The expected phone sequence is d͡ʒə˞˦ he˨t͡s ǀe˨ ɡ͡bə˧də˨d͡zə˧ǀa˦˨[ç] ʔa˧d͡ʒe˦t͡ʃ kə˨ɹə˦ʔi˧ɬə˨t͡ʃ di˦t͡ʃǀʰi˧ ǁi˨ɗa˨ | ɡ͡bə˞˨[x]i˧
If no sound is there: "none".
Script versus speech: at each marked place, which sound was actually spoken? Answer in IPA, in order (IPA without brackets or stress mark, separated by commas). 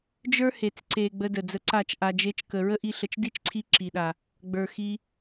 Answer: t͡ʃ, x